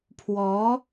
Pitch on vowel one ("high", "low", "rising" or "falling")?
rising